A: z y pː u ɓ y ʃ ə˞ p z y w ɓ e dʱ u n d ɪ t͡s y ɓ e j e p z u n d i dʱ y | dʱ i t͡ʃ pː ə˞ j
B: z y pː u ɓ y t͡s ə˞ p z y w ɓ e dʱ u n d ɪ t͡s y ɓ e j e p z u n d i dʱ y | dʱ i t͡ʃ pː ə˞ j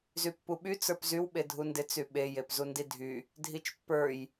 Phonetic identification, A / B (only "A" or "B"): B